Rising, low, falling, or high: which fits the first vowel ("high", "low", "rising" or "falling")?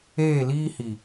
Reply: falling